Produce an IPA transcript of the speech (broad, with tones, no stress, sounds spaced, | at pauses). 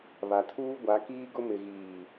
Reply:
β a˨ tʰ uː˦ ɡʷ a˨˦ k iː˦ ɡ ʊ˦ m ɪ˨ ɣ iː˨